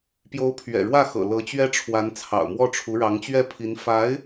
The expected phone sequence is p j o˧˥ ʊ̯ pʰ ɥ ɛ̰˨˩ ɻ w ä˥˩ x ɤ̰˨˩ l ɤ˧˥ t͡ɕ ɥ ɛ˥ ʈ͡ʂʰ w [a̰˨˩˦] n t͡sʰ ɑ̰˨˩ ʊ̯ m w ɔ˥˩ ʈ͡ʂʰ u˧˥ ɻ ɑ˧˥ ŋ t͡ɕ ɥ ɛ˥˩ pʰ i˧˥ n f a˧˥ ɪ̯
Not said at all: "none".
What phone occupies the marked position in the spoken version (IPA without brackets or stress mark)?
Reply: a˧˥